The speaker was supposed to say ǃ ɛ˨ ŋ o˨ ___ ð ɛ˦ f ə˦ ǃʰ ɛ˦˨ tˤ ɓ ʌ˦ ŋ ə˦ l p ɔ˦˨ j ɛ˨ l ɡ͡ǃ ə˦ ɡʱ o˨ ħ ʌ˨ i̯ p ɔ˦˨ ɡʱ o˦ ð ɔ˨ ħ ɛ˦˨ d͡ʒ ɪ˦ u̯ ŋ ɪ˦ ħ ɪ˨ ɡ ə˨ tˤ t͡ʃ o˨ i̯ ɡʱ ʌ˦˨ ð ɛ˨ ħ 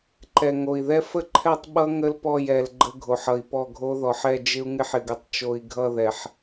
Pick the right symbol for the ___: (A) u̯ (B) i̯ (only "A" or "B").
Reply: B